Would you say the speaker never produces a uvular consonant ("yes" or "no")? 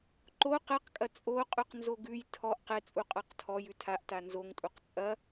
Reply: no